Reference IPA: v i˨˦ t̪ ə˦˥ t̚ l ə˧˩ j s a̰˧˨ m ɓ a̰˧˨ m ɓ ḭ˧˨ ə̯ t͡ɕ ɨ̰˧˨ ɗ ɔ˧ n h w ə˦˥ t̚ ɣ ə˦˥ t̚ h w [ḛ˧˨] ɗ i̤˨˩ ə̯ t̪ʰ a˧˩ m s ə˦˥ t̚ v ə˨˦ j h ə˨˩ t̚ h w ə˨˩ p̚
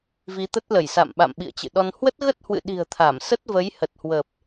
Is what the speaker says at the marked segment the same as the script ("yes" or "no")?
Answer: no